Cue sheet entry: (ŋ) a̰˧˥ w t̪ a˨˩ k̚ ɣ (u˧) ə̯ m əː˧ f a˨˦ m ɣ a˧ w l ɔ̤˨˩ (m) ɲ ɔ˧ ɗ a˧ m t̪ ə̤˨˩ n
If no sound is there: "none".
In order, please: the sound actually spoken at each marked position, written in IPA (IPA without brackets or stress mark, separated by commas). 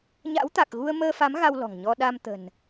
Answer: ɲ, u˧, ŋ